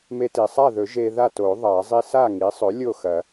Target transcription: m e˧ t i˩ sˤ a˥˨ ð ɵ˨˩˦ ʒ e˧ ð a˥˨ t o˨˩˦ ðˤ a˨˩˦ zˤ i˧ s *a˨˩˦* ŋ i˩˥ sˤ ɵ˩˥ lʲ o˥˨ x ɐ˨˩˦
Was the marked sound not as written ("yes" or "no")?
yes